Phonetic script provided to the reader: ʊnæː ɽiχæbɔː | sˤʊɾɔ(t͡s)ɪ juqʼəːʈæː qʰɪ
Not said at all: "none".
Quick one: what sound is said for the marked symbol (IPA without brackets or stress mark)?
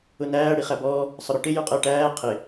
ʈ